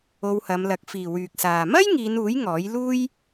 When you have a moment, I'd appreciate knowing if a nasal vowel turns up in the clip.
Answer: no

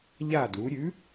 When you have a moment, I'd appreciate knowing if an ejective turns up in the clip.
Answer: no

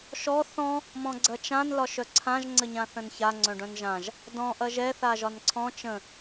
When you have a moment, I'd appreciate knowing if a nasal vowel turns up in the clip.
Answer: yes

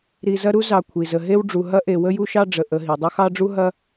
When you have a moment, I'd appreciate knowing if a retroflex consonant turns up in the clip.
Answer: yes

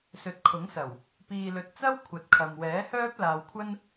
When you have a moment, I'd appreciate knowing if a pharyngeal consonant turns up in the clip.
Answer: no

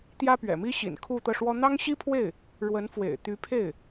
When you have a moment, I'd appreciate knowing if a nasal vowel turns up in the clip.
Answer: no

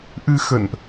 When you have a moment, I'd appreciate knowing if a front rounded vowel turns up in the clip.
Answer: no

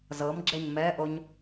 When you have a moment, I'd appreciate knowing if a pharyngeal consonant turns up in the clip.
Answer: no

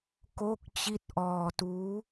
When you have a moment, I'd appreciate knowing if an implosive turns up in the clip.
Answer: no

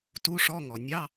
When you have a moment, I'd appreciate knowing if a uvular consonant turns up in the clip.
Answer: no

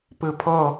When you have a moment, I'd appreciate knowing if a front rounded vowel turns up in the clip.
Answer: no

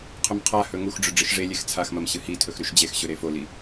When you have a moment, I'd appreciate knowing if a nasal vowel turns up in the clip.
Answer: no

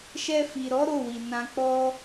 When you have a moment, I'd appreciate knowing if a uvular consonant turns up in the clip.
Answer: no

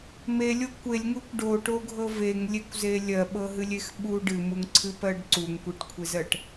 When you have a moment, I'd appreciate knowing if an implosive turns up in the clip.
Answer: yes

